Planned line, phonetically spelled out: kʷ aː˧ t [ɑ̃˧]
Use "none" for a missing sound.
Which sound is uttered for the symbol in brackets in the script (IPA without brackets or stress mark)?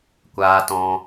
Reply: ɔ̃˧